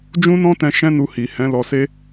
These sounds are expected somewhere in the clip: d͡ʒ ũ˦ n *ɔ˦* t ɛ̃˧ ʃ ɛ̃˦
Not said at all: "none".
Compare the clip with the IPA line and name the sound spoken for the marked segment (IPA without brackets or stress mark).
ɔ̃˦